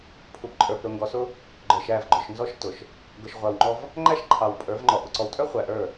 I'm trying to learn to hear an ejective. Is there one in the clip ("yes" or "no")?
yes